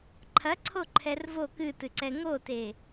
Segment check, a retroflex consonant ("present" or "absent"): absent